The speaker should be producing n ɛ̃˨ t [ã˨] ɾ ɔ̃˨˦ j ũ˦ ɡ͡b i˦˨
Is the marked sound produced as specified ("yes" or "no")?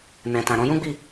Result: yes